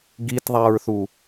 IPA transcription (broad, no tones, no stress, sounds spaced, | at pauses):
ɡ i t ðˤ æ ɹ θ u